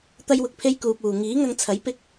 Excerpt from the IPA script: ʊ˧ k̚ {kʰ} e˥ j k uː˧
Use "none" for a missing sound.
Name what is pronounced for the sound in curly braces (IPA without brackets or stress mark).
pʰ